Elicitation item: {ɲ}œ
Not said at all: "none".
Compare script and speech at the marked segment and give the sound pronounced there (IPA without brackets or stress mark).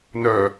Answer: n